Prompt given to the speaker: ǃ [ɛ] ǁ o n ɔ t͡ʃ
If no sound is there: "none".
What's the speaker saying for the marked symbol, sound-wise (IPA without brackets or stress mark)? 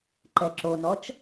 ɛ